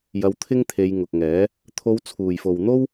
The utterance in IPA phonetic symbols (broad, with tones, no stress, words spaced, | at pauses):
jɐ˧wt̪ʰɪ˥ŋt̪ʰe˨˧j ŋʊ˨k̚ŋɛː˨˥ | t̪ʰo˨˧wt͡sʰuː˨˩jfo˨wn̪o˥w